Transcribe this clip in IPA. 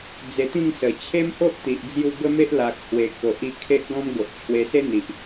d͡z e˧ t̪ ĩ˥˧ ŋ s ə˨˩ t͡ɕʰ e˦ m h o˦ ʔ t̪ i˨ ʔ d͡z j u˧ ɡ ə˦ m e˦ ʔ l a˨ k̚ h w e˨˩ k o˨ ʔ i˧ kʰ e˦ ʔ ɡ ɔ̃˦ m ɡ o˨ ʔ t͡ɕʰ w e˧ s e˦ n̪ i˨ ʔ

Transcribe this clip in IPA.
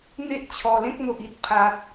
n̪ e˦ ʔ t͡ɕʰ ɔ˨˩ l ẽ˦ k̚ n̪ o˨ ʔ i˨ t̚ pʰ a˨ t̚

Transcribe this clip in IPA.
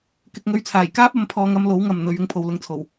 k ɪ˧ k̚ ŋ ɵ˧ ɥ t͡sʰ aː˨˩ j k aː˥ p̚ ɐ˨˧ m pʰ ɔː˧ ŋ ɐ˧ m l o˨˥ w ŋ ɐ˨ m n̪ ɵ˨˧ ɥ ɪ˧ ŋ pʰ o˨ w l ʊ˧ ŋ t͡sʰ o˨˩ w

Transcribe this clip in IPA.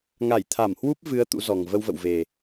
ŋ a˧˩ j t̪ʰ a˧˩ m h w u˦˥ p̚ v ɨ˨˦ ə̯ t̪ ṵ˧˥ z ɔ˨˩ ŋ v ə˧ w v ə̰˧˨ w v e˨˩

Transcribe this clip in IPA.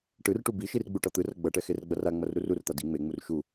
ʈ ɯ r ʈ u b i ʃ i r ɡ͡b u ʈ ʌ t̪ ɯ r ʌ ɡ͡b ʌ ʈ ɛ x e r ɡ͡b ʌ r a ŋ͡m ʌ r ɾ u r u r t̪ a d i ŋ͡m e ŋ͡m u r ʃ u

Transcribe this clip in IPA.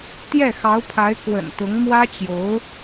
t̪ j ɛ˥˩ x ɑ˧˥ ʊ̯ pʰ a˧˥ ɪ̯ k w ə̰˨˩ n t̪ ʊ˧˥ ŋ m w ä˥ t͡ɕ j o˧˥ ʊ̯

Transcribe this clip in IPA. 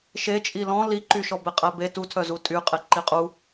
ʃ e t͡ʃʼ i l ɔ̃ l i ǃ y ʃ ɔ b e qʼ æ b e t u tʰ œ z u tʼ y qʼ e ǃ i qʼ u

